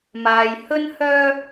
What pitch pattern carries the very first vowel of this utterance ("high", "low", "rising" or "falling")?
low